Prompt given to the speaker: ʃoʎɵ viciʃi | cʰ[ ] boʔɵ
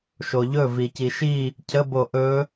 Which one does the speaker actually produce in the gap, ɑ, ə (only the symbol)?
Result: ə